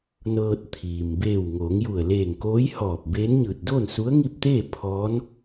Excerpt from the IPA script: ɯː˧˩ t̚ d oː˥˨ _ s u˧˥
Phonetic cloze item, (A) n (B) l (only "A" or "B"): A